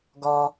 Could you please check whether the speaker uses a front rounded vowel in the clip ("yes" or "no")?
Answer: no